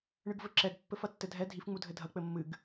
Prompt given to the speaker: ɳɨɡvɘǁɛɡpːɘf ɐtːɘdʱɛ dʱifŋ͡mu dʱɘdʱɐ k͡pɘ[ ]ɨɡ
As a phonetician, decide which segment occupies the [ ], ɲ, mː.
mː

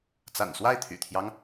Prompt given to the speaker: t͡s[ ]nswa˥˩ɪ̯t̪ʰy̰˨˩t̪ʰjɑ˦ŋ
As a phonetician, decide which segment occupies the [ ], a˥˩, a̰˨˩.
a̰˨˩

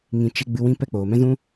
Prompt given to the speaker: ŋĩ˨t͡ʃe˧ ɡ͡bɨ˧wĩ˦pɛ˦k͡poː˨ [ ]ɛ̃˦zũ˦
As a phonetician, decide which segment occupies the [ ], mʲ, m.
m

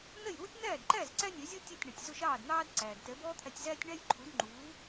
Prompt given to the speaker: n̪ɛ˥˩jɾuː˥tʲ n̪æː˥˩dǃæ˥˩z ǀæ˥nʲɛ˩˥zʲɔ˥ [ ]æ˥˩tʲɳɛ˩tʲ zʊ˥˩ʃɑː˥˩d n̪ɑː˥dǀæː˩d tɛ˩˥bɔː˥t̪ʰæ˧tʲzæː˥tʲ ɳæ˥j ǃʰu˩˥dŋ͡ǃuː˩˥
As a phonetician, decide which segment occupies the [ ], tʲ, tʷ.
tʲ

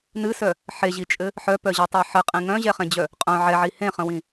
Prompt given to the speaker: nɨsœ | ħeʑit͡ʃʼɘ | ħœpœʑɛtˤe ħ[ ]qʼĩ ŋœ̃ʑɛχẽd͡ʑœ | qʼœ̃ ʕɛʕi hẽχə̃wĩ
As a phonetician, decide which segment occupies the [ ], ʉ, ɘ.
ɘ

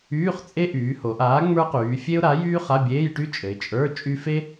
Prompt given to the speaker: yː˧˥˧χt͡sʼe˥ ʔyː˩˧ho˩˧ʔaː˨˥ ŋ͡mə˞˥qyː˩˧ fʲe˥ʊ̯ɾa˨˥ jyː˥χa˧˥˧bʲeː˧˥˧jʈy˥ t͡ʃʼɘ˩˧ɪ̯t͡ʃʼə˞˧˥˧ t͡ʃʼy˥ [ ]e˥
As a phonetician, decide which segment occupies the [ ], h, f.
f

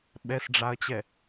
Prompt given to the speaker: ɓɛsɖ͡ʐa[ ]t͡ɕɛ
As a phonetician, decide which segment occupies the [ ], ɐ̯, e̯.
ɐ̯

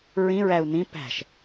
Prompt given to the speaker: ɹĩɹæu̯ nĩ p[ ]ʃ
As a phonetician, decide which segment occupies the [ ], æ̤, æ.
æ̤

